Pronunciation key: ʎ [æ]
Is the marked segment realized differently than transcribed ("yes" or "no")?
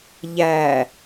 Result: no